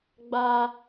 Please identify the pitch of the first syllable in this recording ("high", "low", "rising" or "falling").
high